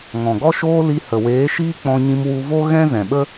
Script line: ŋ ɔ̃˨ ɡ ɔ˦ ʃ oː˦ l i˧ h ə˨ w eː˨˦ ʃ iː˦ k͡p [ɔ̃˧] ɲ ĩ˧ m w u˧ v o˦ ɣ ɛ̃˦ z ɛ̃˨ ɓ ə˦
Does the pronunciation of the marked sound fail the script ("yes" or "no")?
no